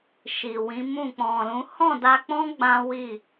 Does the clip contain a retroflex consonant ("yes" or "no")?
no